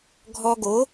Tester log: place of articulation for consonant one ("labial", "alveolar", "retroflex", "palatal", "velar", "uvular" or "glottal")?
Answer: velar